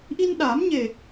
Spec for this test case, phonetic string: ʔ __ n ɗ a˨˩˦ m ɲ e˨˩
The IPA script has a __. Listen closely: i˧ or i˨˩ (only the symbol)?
i˧